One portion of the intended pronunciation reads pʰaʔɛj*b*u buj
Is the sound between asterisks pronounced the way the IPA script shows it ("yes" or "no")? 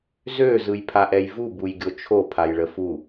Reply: no